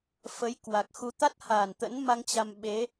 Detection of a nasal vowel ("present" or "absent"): absent